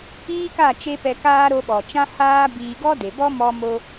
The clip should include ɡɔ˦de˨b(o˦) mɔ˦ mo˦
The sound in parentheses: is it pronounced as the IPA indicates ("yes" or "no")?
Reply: no